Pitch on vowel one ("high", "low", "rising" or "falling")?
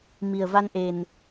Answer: low